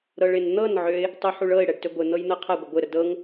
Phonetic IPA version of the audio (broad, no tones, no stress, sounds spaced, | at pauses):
ɾ ɤ ɭ ɪ n n̪ ɤ n ʕ ø ɪ̯ | tˤ u ħ u ɭ ɤ ɪ̯ ɽ ɛ ɖ t ø ɡʷ ɪ n̪ ɤ j n̪ ɤ qʰ a ɡʷ ɪ ɡʷ ɪ ɾ ə d ɤ ŋ